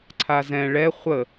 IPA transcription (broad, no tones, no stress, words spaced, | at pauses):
ǀʰazɛ̃ ɭɛ χʷə